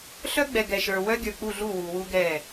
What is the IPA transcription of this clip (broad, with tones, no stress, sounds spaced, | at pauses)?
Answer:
ɬ œ˦ ɡ͡b ɛ˨ ɡ ɛ˨ ʃ ə˞˨ w œ˦ ɡʲ ə˞˨ k͡p u˦˨ ɮ u˦˨ w u˨ w u˦ ɡ ɛ˦˨